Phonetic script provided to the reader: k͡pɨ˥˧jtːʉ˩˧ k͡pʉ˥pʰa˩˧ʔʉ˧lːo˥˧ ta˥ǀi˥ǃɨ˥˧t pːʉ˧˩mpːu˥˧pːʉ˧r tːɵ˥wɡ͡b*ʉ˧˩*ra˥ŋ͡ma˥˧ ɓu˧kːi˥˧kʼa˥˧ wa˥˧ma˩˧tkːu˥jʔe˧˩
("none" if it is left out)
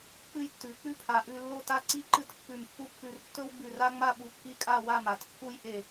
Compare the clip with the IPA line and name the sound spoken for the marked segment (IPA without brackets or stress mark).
ʉ˧˩